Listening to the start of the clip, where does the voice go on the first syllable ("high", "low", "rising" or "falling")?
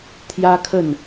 high